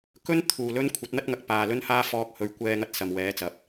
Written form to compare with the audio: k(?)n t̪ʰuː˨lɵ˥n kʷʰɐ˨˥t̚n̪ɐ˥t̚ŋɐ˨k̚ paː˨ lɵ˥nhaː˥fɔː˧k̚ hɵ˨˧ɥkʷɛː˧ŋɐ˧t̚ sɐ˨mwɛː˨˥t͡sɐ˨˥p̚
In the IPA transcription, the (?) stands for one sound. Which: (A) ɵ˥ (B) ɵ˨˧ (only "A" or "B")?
A